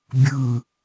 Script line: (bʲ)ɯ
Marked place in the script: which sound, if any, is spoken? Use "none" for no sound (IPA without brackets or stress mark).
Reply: bʲ